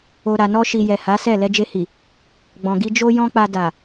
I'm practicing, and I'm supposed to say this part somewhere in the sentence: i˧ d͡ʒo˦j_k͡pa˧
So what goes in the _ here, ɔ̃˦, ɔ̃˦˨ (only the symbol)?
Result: ɔ̃˦